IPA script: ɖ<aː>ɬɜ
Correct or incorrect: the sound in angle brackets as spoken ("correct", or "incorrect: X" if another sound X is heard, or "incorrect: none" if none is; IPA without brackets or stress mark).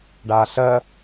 correct